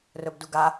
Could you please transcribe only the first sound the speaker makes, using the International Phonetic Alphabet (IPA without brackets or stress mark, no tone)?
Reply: r